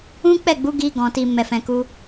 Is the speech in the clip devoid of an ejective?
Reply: yes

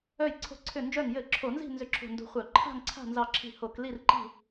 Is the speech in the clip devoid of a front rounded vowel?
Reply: no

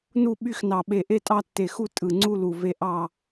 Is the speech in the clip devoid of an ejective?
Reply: no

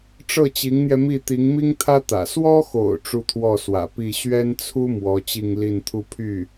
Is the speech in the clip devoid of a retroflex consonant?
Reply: no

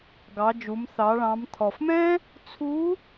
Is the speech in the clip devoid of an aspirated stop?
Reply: no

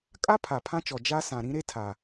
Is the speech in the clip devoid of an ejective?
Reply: no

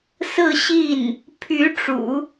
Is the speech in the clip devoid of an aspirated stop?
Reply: no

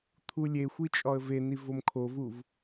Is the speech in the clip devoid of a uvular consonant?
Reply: yes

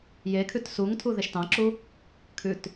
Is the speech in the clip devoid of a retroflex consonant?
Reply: yes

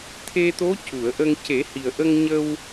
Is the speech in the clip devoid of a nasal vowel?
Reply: yes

